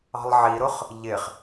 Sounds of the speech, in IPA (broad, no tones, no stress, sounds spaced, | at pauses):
ɑ̤ lˠ ʕ i ɾ ʊ χ | ʎ ɪ χ